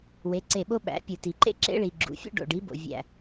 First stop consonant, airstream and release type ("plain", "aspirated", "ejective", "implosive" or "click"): click